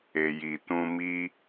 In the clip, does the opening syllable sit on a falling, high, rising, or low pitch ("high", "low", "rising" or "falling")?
low